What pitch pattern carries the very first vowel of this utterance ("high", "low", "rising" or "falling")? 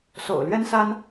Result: low